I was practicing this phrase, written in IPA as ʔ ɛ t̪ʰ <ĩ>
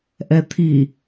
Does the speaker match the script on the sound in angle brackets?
no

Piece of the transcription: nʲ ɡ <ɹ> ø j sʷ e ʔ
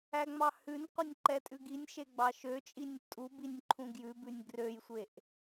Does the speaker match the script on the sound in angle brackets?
no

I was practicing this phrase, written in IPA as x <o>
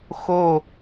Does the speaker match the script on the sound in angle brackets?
yes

